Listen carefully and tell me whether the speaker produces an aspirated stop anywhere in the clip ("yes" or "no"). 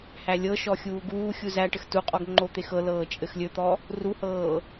no